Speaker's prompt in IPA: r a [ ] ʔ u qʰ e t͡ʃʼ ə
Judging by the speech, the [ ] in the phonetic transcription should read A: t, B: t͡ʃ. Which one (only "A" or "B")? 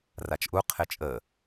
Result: B